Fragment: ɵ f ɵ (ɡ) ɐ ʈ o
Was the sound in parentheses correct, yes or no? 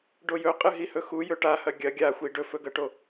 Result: yes